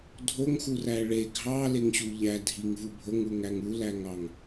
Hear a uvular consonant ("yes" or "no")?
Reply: no